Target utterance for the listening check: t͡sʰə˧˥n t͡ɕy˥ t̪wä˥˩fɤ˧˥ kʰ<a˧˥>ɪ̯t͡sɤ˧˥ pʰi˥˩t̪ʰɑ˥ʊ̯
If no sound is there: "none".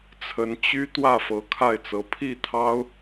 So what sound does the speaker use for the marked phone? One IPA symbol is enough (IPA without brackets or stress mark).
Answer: a˥˩